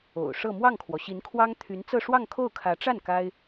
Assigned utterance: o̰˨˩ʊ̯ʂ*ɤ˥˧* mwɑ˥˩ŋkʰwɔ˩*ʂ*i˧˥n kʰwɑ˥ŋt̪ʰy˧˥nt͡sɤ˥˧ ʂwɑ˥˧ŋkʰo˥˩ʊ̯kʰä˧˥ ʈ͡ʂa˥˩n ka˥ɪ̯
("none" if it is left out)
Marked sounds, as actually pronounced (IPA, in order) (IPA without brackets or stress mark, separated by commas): ɤ˥˧, ɕ